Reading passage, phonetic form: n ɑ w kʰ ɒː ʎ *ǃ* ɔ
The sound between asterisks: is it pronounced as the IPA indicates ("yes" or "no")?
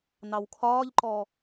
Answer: yes